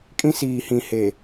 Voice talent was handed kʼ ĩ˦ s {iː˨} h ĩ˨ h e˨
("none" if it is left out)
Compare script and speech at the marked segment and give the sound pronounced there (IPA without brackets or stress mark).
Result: iː˨